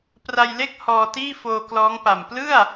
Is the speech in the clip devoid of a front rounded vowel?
yes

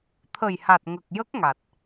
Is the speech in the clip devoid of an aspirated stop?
no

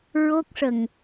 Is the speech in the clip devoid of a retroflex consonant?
no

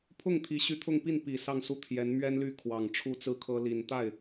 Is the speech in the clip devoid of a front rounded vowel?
no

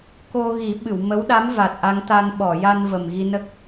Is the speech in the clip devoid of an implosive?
no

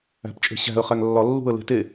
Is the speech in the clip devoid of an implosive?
yes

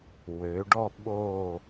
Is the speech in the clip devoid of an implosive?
no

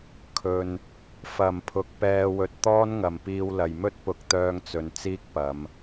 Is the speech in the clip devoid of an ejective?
yes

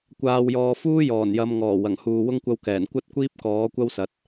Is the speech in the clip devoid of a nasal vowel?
yes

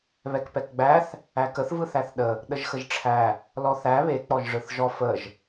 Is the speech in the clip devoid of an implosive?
no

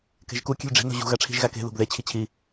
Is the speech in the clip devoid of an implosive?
yes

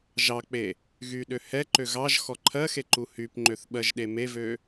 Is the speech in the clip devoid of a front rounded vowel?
no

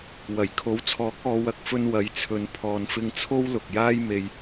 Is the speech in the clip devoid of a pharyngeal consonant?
yes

